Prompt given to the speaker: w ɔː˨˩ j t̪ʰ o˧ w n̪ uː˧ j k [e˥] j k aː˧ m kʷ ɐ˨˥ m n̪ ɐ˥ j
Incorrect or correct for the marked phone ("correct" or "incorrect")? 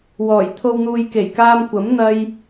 incorrect